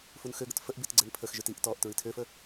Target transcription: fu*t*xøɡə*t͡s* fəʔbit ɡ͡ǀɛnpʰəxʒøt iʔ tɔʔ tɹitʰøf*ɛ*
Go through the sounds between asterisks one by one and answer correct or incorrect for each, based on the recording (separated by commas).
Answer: incorrect, incorrect, incorrect